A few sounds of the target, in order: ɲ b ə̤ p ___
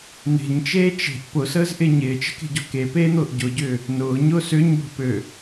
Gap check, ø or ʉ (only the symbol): ø